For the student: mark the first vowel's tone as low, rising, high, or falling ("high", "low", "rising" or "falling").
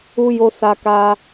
high